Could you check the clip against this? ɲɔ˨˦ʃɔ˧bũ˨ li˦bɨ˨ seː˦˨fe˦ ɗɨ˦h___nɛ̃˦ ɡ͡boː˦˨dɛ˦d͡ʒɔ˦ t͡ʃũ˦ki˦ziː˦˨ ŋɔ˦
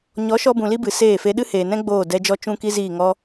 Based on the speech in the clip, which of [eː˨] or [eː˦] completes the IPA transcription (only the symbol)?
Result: eː˨